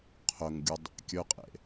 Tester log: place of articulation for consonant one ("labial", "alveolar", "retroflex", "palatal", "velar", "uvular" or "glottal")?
uvular